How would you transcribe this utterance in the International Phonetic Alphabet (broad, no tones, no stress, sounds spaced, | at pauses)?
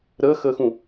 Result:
ɾ əː x əː x ũ